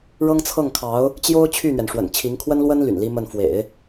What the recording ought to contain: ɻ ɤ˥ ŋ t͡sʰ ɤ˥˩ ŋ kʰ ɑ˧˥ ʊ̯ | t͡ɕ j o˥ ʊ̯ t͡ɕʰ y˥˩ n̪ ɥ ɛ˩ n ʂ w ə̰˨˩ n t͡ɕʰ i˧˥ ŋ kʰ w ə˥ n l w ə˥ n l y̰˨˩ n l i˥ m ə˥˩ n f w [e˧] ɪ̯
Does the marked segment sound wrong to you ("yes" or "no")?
yes